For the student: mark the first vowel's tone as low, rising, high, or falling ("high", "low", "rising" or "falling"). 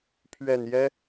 low